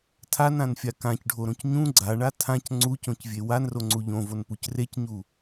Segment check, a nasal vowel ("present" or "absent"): present